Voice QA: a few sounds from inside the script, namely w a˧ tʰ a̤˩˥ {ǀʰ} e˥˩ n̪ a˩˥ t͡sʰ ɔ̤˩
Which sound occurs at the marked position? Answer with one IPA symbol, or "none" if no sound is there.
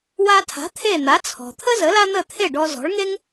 t̪ʰ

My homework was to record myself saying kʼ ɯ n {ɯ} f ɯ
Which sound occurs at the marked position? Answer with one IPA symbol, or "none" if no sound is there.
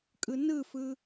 ɯ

